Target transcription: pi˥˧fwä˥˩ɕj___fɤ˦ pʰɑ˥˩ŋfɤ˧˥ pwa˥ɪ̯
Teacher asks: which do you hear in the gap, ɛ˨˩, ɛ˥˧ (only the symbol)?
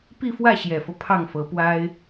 ɛ˨˩